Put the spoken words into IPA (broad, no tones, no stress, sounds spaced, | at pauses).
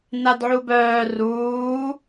n a d ʕ u b œː r uː